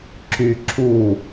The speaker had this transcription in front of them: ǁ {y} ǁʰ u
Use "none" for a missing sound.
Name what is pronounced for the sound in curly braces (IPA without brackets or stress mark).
y